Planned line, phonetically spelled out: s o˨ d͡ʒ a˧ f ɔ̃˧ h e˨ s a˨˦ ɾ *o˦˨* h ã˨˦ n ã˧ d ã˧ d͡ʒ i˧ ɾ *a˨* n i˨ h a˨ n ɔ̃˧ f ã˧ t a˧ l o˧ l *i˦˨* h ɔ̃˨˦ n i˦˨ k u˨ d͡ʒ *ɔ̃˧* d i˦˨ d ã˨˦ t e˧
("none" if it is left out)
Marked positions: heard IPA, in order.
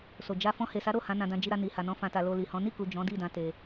o˦˨, a˧, i˨, ɔ̃˨˦

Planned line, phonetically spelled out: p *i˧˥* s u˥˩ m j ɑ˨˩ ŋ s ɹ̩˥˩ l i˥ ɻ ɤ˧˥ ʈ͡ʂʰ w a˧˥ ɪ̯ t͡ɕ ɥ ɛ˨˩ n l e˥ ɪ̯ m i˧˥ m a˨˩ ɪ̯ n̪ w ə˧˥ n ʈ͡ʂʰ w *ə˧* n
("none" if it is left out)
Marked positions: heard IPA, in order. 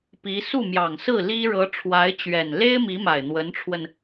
i˧˥, ə˧

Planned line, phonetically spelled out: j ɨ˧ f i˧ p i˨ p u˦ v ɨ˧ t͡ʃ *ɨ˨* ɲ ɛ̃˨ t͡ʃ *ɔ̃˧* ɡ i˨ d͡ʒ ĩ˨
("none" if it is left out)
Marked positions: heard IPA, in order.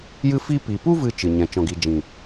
ɨ˨, ɔ̃˨

